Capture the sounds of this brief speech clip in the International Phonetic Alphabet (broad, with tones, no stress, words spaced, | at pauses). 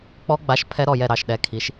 k͡pɔ˦˥ ɡ͡ba˨˥ʃ pʰɛ˦˥ɾɔ˦˨jɛ˦˨ ɾɑ˦˨ʃɗɛ˨˥kʰi˨˥ʃ